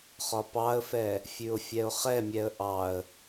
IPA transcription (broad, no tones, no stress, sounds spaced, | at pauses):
χ ɒ p ɑ ə̯ f ɛ | fʲ ʉ ʊ̯ fʲ ɛ ʊ̯ χ ɛ mʲ ɛ ə̯ ʔ ɑ ə̯